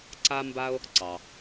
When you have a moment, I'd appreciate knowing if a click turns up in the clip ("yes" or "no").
yes